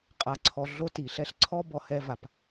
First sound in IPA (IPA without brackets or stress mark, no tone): qʼ